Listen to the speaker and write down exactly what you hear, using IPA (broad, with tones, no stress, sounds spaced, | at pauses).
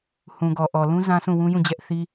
h ũ˨ ɡ ɔ˨ ʔ ɔ˨ l ũ˦ z ã˦ s ũ˦˨ w ũ˦ j ũ˦˨ d͡ʑ ɛ˦ ʔ θ i˦